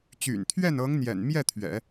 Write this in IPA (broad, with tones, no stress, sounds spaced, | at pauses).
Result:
t͡ɕ y̰˨˩ n t̪ʰ ɥ ɛ˥˩ n ɤ˧˥ ŋ n̪ j ɛ̰˨˩ n m j ɛ˥˩ t̪ʰ ɥ ɛ̰˨˩˦